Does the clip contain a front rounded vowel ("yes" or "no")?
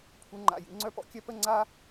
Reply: yes